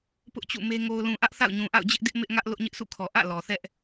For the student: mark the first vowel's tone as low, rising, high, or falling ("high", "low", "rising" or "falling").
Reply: high